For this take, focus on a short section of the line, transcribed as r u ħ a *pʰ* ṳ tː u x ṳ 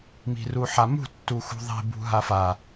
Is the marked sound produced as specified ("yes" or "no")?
no